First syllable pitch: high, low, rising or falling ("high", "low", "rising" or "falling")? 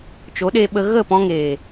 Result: rising